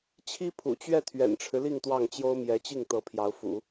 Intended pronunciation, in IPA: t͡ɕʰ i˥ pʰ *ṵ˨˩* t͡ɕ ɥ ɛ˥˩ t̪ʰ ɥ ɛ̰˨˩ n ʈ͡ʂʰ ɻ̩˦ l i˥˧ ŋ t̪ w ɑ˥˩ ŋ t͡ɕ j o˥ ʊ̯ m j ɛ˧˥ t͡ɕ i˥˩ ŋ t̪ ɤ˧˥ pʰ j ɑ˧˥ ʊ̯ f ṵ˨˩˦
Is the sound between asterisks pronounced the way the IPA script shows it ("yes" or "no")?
yes